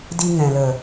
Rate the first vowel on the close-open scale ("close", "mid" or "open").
close